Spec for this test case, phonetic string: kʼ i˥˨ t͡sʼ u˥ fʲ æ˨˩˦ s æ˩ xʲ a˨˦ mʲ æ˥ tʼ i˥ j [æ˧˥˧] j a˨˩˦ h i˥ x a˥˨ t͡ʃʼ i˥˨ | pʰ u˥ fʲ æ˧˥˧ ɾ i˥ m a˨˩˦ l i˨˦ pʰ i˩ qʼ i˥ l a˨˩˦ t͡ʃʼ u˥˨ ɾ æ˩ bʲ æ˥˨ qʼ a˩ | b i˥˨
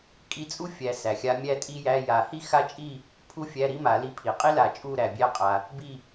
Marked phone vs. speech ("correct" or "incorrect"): correct